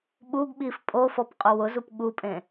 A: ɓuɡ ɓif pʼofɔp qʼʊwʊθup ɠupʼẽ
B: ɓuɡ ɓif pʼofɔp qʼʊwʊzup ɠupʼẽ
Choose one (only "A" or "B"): B